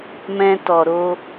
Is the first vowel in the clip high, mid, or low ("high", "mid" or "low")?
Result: mid